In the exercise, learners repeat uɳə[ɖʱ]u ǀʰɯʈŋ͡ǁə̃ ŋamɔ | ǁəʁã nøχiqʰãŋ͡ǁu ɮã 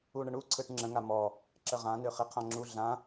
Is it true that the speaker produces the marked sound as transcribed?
no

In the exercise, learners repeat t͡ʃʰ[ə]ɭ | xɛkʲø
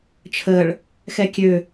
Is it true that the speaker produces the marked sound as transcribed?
yes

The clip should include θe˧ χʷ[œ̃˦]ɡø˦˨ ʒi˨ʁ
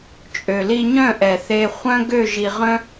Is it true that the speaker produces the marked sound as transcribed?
yes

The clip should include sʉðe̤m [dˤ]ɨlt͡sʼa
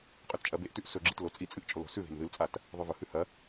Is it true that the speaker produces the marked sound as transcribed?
no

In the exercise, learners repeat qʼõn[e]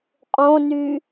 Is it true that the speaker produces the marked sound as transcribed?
no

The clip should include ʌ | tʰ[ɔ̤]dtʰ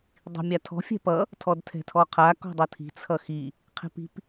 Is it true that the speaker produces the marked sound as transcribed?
no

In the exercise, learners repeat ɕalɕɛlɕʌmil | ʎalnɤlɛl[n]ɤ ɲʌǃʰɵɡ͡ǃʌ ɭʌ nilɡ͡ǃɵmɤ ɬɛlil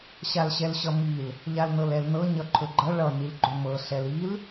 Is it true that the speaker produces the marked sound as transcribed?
yes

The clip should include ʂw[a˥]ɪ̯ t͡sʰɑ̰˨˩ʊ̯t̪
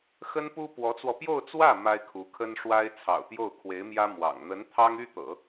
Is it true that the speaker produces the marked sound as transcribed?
yes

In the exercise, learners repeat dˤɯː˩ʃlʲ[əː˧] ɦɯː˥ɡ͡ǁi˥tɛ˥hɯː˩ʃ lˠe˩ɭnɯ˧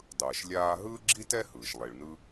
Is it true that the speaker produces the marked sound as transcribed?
no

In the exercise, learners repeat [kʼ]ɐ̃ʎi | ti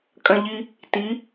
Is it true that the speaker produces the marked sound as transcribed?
yes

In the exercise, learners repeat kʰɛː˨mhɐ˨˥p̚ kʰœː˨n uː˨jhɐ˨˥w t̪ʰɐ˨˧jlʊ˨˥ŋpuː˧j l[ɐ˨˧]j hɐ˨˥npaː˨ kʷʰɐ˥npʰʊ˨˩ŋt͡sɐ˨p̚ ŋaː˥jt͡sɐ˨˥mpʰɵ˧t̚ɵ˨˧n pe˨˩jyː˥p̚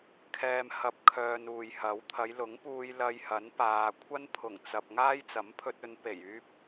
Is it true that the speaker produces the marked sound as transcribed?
no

